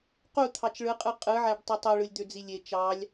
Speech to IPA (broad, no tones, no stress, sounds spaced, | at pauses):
q u t̪ʰ ɑ t͡ʃ ɭ ɯ qʼ ɯ qʼ ɯ ʕ æ ɖ tˤ i tˤ o ɭ ɯ lʲ d̪ ø d͡z i lʲ e t͡ʃ ɑ lʲ